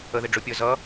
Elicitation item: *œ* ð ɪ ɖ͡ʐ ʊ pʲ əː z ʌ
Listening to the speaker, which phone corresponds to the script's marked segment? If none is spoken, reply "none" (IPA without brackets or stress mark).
ə